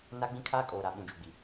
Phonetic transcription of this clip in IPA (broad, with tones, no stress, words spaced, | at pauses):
na˦ ɡ͡bĩ˦kʰaː˦kʼoː˨ɾa˨ ɓũ˨d͡ʒu˨ɡ͡bi˨